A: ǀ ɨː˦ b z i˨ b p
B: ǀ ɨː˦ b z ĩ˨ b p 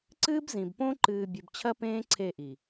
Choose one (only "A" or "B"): B